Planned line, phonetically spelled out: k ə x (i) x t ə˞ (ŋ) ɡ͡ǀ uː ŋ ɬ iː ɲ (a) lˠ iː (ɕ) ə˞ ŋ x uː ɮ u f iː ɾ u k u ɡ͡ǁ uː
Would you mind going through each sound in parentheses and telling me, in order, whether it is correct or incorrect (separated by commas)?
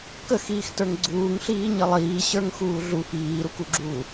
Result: incorrect, correct, incorrect, correct